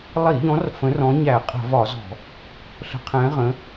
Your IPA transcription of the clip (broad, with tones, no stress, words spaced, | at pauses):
lˠi˧˩˧ʎɔ̃˨˦r fə̃˨˦rɔ̃˨˦ ɲæ˧˩˧qʼə̤˧˩˧vɒ˧˩˧zɔ̤˧˩˧ | ɬə̤˨˦qʰɛ̃˨˦ʁə̃˨˦